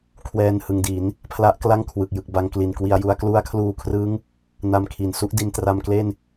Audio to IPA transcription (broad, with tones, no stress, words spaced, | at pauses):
kʰwɛː˧nhɯ˨˩ŋdi˩˦n | pʰla˦˥ʔkla˥˩ŋkʰwɯ˨˩k̚jɯ˨˩k̚ ba˧ŋkli˨˩n kwi˧a̯ju˦˥a̯ klu˦˥a̯kʰluː˧kʰrɯ˦˥ŋ | na˧mkʰi˩˦n su˦˥ʔdi˧ntra˧mkle˥˩n